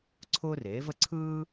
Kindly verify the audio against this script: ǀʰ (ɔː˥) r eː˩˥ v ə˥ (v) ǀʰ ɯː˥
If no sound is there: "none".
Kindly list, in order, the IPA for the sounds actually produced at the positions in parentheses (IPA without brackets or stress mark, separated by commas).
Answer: ʊː˥, none